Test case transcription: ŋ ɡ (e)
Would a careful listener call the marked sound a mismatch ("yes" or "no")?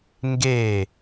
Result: yes